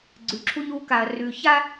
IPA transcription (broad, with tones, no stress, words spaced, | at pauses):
ɡ͡ǀʉ˨ǁʰu˧ɲu˨˦ka˨ɐ̯ rʉ˨ça˦